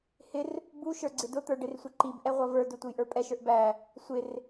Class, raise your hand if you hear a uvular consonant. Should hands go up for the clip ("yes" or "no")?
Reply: yes